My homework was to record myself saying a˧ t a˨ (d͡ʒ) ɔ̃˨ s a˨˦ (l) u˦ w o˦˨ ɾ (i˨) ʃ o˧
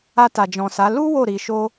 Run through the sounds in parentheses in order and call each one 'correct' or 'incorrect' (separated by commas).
correct, correct, correct